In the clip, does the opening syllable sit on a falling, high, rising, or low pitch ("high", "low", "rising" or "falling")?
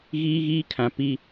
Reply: high